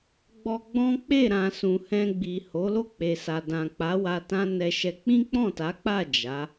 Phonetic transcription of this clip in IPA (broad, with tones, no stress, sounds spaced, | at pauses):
ɡ͡b ɔ˧ ɡ͡b ɔ̃˦ k͡p e˦˨ ɾ ã˨ s ũ˨ h ɛ̃˧ ɡ͡b i˨ h o˨˦ l o˦˨ k͡p e˨ s a˨ d ã˨ k͡p a˨˦ w a˧ t ã˦ n ɛ˧ ʃ ɛ˧ k͡p ĩ˦ k͡p ɔ̃˦˨ t a˨˦ k͡p a˦˨ d͡ʒ a˨˦